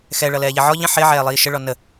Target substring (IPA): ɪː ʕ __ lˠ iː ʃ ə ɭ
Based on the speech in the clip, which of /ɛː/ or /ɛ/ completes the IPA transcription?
ɛː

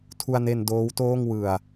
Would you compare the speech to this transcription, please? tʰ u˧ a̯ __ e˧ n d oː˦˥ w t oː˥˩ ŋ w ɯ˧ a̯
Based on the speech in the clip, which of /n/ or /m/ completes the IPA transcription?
n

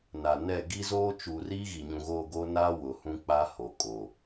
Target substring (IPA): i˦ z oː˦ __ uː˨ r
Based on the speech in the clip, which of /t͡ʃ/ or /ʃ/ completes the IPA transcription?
t͡ʃ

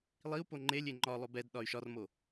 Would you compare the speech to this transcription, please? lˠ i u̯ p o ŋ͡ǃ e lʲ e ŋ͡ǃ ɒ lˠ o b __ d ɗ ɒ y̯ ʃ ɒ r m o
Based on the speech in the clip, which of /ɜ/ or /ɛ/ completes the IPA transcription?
ɛ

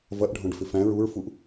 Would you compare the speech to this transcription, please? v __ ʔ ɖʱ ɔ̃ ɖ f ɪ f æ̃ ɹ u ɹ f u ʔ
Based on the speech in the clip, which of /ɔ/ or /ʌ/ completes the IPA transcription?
ʌ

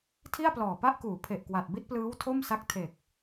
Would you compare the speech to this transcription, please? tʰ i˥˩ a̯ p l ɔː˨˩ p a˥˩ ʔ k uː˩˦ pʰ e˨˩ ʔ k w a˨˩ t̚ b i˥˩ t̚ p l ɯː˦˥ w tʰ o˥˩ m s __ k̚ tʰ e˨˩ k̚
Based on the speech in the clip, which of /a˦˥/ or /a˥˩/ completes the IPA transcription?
a˦˥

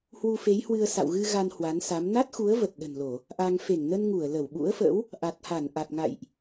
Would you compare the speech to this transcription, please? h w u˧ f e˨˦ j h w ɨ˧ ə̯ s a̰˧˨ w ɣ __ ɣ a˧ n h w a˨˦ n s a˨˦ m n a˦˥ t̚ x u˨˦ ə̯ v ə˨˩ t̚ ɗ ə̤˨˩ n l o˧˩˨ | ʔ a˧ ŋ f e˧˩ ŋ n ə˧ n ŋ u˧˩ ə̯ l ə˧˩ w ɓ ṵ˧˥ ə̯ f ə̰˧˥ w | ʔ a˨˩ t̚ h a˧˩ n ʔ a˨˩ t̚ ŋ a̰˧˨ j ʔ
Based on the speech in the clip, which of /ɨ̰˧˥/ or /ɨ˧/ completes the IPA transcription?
ɨ˧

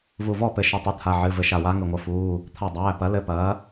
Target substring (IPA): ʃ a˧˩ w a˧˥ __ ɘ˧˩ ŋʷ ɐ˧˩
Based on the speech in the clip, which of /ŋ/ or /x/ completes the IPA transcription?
ŋ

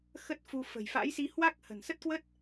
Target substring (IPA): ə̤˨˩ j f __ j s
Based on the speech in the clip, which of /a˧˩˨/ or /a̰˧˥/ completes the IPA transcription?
a̰˧˥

